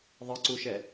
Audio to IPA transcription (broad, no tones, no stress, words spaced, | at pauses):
ðˤɪǀuʃɛ